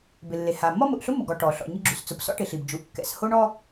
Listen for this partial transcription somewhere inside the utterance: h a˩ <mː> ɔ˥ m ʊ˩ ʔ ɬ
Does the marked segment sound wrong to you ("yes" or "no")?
no